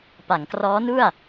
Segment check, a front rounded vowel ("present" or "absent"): absent